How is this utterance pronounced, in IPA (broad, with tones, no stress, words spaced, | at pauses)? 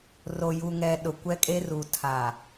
ro˨ju˨ŋɛ˨ ɗʊ˨kʷɛ˦kʼe˦ru˨ tʰa˨